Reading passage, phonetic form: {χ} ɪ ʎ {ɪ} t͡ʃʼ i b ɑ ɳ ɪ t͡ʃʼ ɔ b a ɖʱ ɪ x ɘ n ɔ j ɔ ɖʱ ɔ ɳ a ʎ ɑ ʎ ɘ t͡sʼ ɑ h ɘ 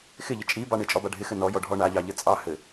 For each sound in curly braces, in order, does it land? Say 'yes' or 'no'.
no, yes

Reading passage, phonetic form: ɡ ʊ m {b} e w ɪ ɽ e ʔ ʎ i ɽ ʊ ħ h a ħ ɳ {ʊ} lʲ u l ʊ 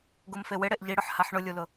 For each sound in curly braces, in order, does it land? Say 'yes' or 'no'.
no, yes

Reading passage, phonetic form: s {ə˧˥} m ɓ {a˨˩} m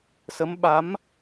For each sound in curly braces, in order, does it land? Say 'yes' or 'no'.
yes, no

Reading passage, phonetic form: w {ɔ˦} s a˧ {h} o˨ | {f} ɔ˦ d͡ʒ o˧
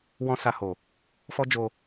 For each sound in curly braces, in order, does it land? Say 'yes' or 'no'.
no, yes, yes

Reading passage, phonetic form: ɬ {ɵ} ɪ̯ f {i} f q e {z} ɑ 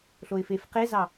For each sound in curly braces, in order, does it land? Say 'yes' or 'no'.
no, no, yes

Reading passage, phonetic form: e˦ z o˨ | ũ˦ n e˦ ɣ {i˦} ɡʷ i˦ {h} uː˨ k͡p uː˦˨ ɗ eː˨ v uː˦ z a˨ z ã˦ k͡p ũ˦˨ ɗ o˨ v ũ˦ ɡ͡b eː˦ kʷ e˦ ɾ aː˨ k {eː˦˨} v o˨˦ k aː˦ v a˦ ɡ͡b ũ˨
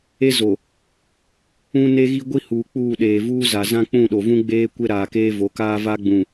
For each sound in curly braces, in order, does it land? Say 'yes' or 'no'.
yes, yes, no

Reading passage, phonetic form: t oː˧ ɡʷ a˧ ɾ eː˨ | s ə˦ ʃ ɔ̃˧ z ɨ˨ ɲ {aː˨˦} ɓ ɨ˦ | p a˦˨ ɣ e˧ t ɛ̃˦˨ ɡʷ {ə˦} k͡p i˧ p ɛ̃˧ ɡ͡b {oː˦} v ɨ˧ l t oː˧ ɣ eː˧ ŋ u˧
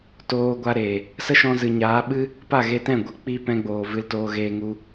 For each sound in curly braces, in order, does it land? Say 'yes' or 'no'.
yes, no, no

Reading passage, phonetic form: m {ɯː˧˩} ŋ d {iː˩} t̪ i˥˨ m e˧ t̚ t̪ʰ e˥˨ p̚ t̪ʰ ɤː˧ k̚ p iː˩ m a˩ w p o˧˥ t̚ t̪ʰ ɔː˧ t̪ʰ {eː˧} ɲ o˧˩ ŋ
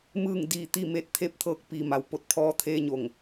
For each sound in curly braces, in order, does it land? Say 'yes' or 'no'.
yes, yes, yes

